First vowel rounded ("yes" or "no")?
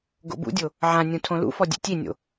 yes